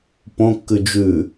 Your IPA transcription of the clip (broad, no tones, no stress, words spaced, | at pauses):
põkːʉ d͡ʒʉ